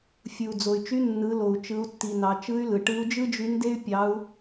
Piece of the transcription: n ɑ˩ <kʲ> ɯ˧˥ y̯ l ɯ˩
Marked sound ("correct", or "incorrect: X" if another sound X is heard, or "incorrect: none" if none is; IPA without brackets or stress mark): incorrect: t͡ʃ